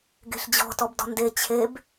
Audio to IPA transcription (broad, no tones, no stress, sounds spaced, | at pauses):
ɡ e̤ ɬ d͡ʑ ɔ̤ t ɔ b d ɔ̤ n d e t͡ɕʰ e b